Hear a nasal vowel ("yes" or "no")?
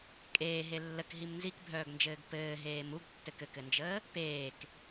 no